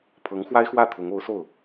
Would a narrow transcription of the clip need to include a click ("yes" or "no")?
no